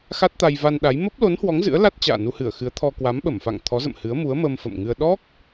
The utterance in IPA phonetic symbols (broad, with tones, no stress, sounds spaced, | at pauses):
x a˦˥ t̚ t̪ a˧ j v a˧ n ɗ a˨˦ j m ə˦˥ p̚ l o˨˦ n h w ɔ˨˦ ŋ z ɨ̰˧˥ ə̯ l a˦˥ t̚ t͡ɕ a̰ː˧˨ n u˧ h ɨ˧˩ ə̯ x ɨ˨˦ ə̯ t̪ʰ ɔ˧ k w a˨˦ m ɓ ə˧˩ m f a̰˧˨ ŋ t̪ʰ ɔ˨˦ z ə̰˧˨ m h ɨ˨˦ ə̯ m u˨˦ ə̯ m ə˧ m f ə̰˧˨ m ŋ ɨ˧ ə̯ ɗ ɔ˦˥ k̚